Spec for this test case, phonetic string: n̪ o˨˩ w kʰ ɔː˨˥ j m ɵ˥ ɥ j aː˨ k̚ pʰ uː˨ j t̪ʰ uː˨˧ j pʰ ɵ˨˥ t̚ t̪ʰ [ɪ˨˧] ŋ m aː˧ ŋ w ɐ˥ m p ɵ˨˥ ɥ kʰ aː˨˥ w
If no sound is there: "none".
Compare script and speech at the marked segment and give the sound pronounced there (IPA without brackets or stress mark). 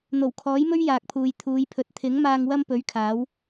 ɪ˨˥